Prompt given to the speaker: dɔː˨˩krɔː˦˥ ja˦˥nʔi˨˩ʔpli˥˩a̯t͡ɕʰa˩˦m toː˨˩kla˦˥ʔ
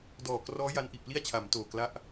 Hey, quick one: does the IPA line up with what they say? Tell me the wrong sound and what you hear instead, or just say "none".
none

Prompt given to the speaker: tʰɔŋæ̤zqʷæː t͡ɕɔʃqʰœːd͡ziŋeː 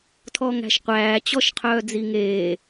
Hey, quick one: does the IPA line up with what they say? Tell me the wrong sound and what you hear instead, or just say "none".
z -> ʃ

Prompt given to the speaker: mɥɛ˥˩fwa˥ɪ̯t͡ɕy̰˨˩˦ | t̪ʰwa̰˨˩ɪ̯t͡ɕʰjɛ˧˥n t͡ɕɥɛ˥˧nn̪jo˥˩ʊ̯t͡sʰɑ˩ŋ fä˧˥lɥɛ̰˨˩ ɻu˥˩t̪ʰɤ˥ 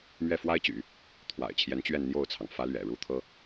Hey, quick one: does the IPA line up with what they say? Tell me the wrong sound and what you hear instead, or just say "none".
none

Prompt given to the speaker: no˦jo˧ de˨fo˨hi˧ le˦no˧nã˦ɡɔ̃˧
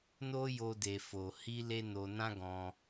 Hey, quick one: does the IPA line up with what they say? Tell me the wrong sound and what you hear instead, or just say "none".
none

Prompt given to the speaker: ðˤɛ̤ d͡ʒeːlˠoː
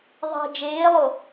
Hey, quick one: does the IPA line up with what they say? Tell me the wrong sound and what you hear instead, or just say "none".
oː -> o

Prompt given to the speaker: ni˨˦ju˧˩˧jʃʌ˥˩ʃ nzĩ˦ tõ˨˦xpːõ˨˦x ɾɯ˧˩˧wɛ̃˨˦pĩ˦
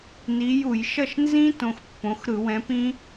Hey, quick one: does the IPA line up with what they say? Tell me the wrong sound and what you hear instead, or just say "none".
none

